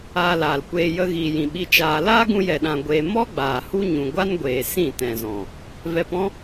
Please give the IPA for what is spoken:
aː˧laː˨lkʷeː˧ jə˧ɣiː˨jĩ˨ ɓi˧t͡ʃaː˧ laː˦ɡũ˧jɛ˨ɗã˨ ɡʷeː˧ mɔ˦ ɡ͡baː˨hu˦ ɲũ˨ɡʷa˦nɡʷeː˨ sĩ˦˨tɛ̃˨zɔ̃˨ | vɛ˧pɔ̃˦

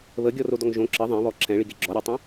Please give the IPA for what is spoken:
βəɡʲɔrodɔŋ ʒõ ǁə ðˤɛ̃βɔ ǁʰɛ̃ɭiɡe ɡ͡ǁɔɾʲɔtˤõ

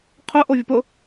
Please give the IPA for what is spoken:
qʰʊ ʔovʲʊpʊ

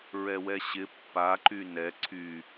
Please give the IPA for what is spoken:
ɹɛwɛɕɪ pːa ǃynɛ ǀʰy

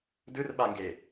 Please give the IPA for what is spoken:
dɯrɓaŋɡe

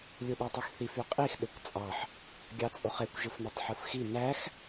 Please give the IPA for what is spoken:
lʲuɗøtˤyxθif yqʼix ɗøkʷt͡sʼɑħ | ɡʲɑt͡sʼoχekʷ ʒɯfnytˤħɯfxi næx

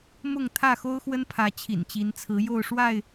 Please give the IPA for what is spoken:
mʊ˥˨ŋ t̪ʰä˥˨xo˦ʊ̯xwə˦npʰä˨˦ t͡ɕʰḭ˨˩nt͡ɕi˨˦nt͡sʰɹ̩˨˦ jo˥˨ʊ̯ʂwa˥˨ɪ̯

